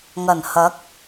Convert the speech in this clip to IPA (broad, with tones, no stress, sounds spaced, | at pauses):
ŋ ɐ˨˩ n h ɐ˨˥ k̚